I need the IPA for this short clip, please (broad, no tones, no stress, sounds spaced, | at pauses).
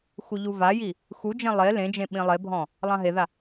x u ʎ u v a j i | x u d͡ʒ ẽ lˠ e l ẽ d͡ʒ ẽ ɓ ĩ lˠ e bʱ ɔ̃ | lˠ ã ɦ e ð a